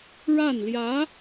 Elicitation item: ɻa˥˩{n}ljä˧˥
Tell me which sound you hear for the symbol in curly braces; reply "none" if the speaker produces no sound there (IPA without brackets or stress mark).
n